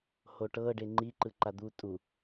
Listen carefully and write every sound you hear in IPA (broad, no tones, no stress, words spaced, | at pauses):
hoʈɤ ɖeŋ͡ǃi ǃɯǃad̪u tʼu